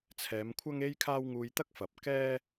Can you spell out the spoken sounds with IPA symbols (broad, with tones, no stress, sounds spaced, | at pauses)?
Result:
t͡sʰ ɛː˨˧ m kʷʰ ɐ˥ ŋ e˥ j kʰ aː˥ w ŋ uː˧ j t̪ ɐ˥ k̚ f ɐ˨˥ p̚ k ɛː˥